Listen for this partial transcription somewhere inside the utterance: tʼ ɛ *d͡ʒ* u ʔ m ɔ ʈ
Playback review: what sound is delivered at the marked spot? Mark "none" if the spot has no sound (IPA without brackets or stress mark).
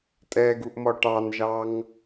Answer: ɡ